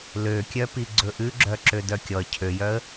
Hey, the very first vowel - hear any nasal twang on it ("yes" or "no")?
no